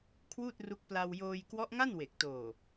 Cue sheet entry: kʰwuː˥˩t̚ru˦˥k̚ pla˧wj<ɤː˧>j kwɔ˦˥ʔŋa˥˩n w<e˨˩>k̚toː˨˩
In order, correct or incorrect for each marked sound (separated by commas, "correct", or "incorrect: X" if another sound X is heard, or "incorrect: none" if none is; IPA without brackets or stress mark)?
incorrect: oː˧, correct